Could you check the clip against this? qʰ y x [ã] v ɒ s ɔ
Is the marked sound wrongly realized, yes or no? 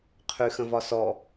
yes